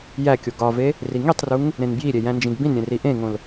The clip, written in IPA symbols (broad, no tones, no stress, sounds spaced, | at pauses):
j æ kʲ o ɡ ɒ v e | r i ŋ i tˤ r u ŋ | ɾ ẽ n b j i ɾʲ e j æ̃ n d͡ʒ ĩ ɡ b ĩ n ɾʲ ẽ r i ʔ ẽ ŋ õ l